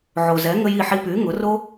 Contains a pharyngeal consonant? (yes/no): yes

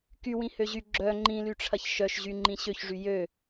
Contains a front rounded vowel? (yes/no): yes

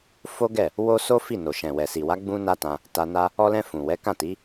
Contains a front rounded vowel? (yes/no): no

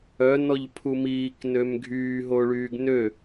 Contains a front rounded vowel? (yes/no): yes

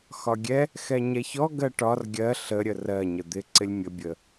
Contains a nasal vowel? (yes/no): no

